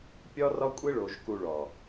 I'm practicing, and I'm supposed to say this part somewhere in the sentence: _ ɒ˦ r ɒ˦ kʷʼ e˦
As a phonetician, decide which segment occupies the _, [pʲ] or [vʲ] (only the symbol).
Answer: pʲ